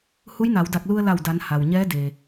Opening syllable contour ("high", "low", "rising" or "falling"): rising